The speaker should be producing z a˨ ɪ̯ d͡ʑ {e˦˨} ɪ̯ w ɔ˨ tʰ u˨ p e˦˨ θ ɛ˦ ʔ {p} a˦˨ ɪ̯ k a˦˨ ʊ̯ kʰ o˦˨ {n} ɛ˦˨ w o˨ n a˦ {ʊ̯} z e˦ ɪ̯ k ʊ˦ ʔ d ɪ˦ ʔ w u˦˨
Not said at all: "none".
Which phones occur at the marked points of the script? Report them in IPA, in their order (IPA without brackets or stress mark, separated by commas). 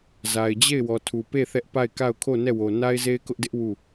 e˦˨, p, n, ɪ̯